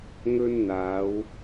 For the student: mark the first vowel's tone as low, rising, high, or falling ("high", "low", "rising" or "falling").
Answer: high